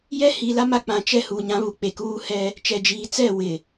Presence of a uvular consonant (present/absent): absent